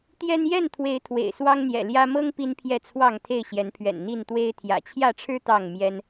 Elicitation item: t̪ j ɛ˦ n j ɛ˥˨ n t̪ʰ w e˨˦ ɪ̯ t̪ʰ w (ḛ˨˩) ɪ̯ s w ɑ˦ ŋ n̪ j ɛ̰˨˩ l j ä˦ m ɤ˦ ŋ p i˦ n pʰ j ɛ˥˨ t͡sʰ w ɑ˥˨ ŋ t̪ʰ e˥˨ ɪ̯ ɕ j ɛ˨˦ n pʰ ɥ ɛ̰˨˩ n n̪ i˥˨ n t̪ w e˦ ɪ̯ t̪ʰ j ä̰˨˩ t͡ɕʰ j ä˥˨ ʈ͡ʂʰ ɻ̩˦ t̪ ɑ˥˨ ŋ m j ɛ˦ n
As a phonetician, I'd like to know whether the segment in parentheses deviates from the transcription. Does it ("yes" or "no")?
no